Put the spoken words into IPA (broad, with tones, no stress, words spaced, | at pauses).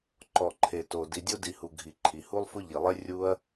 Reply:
ǃɔ˩ǃʰe˩to˩ di˩dʲo˥di˩hu˩ ɡʱi˩ǃʰi˩ hu˥lˠfʊ˥ʎi˩lˠe˥ rʲu˥ɐ̯